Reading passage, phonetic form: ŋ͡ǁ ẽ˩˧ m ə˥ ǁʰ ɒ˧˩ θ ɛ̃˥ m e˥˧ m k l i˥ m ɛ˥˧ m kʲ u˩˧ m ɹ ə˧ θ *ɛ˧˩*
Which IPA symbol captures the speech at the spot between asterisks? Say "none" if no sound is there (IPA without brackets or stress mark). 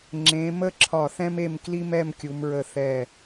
ɛ˧˩